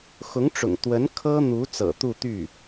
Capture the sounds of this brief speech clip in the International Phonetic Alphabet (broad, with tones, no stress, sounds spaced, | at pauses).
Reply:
x ʊ˧˥ ŋ ʈ͡ʂ ʊ̰˨˩ ŋ t̪ w ə˧˥ n kʰ ɤ˥ n̪ u˧˥ t͡s ɤ̰˨˩ t̪ u˥˧ t̪ y˥˩